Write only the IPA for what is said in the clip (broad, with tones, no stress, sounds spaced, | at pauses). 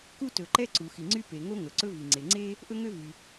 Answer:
k u˥ t ɵ˩ ǃ ɛ˥ ǀ u˩ x i˩ ŋ͡ǀ y˥ p e˩ ŋ o˥ ŋ ɵ˩ ǀ ɵ˥ v i˩ ŋ͡ǀ e˩ ŋ͡ǀ e˥ | ʔ ɵ˥ ŋ ø˥ v y˩